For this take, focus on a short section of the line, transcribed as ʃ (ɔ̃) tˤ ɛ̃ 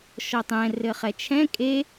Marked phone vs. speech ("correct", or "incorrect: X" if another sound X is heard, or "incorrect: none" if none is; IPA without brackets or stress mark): incorrect: ɔ